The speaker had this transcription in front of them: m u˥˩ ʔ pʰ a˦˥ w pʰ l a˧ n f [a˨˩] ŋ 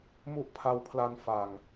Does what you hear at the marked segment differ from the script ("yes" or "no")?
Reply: no